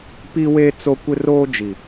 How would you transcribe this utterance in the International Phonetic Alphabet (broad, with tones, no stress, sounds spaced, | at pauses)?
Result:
p i˦ w eː˦ t͡s o˦ kʷ ɪ˦ r oː˦ d͡ʒ i˨